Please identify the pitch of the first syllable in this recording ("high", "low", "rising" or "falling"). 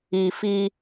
low